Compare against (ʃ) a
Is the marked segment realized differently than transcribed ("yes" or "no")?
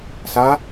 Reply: yes